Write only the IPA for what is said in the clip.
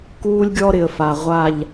k uː˦ lʲ ɡʲ ɔ˦ ɾ ɪ˨ ə̯ f a˨ ʁʷ a˦˨ ʎ

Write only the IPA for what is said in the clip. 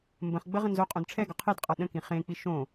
m b ə̃ χ ɡ͡b ə ʁ ə̃ n z o qʼ õ d ʈ͡ʂʰ ɛ ɡ ɒ qʰ e d qʼ a ɗ ə̃ k ĩ χ ẽ k͡p i ʃ õ

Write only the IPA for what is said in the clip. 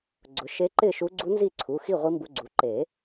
ɡ͡ǀ ʊ˩˥ ʃ e˧˥ ǃ ɪ˥˨ ʃ u˧˥ ɡ͡ǀ u˧˥ n z i˥˨ ǀʰ u˩˧˩ x i˥˨ ʁʷ i˧˥ m b u˧ ɡ͡ǀ u˩˥ ǃ e˨˩˦

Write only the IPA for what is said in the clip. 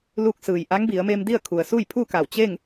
l u˧ k̚ s ɯː˩ j ʔ a˧˥ ŋ b i˩˧ ə̯ m e˧ m d i˥˨ ə̯ kʰ u˩ ə̯ s uː˥˨ j pʰ uː˥˨ k a˧˩ w t͡ɕ e˥˨ ŋ

